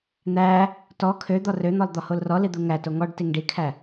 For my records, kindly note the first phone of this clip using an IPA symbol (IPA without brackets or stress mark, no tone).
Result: n̪